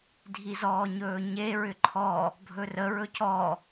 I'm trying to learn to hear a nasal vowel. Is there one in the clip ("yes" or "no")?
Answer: no